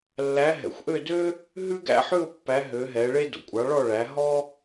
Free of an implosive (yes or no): yes